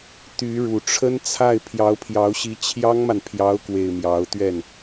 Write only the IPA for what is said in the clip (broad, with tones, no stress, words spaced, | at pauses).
t̪y˧˥ɻu˨˩ ʈ͡ʂʰə˥nt͡sʰa˥˩ɪ̯ pʰjɑ˧˥ʊ̯pʰjɑ˧˥ʊ̯ɕi˧˥ t͡ɕʰjɑ˥ŋma˨npʰjɑ˧˥ʊ̯kwe˨˩ɪ̯ mjɑ˧˥ʊ̯t̪ɥɛ˥˩n